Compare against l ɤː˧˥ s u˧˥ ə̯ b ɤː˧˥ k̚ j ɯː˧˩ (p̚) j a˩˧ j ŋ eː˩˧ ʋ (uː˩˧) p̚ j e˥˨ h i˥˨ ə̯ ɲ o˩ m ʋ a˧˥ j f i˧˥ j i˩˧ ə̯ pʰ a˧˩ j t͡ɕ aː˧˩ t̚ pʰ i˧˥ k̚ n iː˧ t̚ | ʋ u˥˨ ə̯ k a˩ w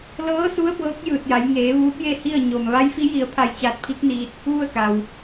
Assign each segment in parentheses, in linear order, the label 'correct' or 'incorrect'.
incorrect: t̚, incorrect: uː˧˥

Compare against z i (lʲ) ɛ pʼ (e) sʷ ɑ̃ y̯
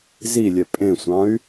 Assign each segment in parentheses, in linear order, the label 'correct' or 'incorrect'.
correct, incorrect: ẽ

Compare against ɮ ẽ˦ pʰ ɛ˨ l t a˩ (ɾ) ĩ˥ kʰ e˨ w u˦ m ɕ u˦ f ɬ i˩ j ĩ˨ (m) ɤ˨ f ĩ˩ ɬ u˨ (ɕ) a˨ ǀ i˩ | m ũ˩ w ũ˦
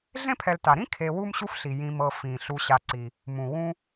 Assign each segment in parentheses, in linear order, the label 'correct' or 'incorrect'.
correct, correct, correct

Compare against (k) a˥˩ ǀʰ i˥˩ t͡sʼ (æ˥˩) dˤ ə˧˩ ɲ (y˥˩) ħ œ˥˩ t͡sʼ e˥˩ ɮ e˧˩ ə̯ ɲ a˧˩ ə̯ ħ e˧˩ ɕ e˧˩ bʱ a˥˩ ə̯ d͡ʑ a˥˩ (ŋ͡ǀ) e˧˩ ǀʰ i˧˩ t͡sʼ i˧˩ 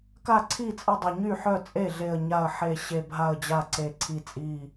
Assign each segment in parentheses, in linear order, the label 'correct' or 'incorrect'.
correct, incorrect: ə˥˩, correct, incorrect: ǀ

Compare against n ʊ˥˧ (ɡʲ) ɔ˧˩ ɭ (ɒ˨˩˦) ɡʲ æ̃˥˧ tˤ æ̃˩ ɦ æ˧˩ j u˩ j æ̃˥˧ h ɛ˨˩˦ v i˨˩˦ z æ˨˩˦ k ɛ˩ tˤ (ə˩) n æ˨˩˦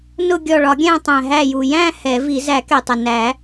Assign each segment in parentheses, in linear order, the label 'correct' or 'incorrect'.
correct, correct, correct

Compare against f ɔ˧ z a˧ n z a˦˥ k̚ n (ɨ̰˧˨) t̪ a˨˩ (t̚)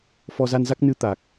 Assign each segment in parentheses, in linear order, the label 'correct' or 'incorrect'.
incorrect: ɨ˨˦, incorrect: k̚

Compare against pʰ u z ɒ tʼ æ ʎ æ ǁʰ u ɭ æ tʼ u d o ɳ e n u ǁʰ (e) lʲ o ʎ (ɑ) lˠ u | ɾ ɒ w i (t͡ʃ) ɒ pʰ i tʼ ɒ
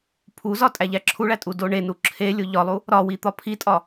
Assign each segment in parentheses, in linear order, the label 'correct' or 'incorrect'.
correct, incorrect: ɒ, incorrect: t̪

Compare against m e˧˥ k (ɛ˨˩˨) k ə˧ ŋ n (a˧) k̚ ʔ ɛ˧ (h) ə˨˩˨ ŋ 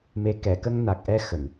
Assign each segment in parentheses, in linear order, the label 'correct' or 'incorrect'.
correct, incorrect: a˨˩, incorrect: x

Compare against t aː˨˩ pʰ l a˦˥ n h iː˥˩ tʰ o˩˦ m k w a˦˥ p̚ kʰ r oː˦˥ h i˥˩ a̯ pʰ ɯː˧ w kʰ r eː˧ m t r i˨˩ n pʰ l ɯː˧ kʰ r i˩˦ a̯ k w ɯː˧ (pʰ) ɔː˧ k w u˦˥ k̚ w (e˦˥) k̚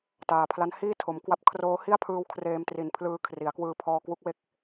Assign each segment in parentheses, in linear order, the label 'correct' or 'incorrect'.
correct, correct

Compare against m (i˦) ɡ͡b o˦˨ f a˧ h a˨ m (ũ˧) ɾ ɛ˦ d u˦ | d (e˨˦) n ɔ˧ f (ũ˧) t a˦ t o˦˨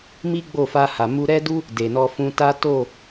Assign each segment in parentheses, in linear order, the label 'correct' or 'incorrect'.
correct, incorrect: u˧, incorrect: e˨, correct

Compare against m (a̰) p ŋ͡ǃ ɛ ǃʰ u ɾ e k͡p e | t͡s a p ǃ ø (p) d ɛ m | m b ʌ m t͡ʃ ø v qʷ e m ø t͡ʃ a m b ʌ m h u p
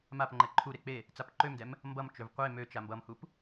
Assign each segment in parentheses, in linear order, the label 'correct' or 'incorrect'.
incorrect: a, incorrect: m

